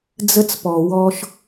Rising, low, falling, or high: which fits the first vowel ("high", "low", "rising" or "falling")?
high